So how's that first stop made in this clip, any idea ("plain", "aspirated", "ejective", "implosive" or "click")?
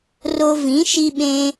implosive